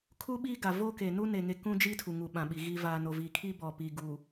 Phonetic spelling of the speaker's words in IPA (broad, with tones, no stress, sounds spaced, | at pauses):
kʰ u˦ ɓ iː˦ ɡ a˨ v oː˦ k e˨ n u˦ n e˨ ŋ e˦ k ũ˦ d͡ʒ iː˦ tʰ u˨ ŋ u˨ ɓ ã˨ ɓ i˨ ɣ i˨ v aː˨ n o˨ v iː˨ kʰ i˦ b ɔ˨ p iː˨ ɡ uː˨